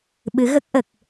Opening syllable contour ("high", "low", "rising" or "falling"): rising